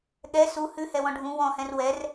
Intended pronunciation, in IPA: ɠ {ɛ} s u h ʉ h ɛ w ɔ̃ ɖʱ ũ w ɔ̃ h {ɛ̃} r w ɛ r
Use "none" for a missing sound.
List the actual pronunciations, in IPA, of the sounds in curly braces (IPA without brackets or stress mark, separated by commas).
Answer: ɛ, ɛ̃